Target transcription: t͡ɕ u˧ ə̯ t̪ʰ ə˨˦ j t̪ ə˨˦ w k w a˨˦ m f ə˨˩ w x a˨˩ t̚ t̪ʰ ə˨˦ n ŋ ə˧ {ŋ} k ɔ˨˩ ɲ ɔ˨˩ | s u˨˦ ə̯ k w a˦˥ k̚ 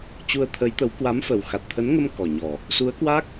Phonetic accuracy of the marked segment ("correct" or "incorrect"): incorrect